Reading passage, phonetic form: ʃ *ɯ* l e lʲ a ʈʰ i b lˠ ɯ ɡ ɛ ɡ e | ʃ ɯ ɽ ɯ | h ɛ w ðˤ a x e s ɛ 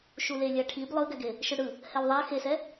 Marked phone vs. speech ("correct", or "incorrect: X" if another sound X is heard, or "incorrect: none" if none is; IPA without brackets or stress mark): incorrect: u